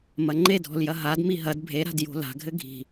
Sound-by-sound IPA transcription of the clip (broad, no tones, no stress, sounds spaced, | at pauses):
m ɐ ŋ͡ǃ e dʱ ɔ̤ l j ɐ ɦ a d m i ɦ ɐ d bʱ e ɾ a̤ d j o̤ l a̤ ɡʱ ɘ ɡʱ i̤